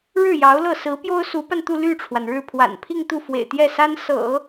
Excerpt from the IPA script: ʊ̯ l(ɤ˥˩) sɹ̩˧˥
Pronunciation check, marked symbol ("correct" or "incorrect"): correct